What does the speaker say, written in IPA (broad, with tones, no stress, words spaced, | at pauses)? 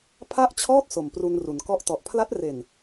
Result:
pʰa˥˩ʔt͡ɕʰɔː˥˩t̚ so˨˩mpru˧nru˩˦n kɔ˦˥ʔtɔ˨˩ʔ pʰla˦˥t̚re˨˩n